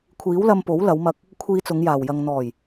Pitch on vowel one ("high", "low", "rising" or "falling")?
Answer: rising